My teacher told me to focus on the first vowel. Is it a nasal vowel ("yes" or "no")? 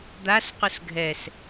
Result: no